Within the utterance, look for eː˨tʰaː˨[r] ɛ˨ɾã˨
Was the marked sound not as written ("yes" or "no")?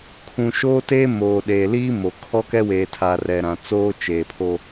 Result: no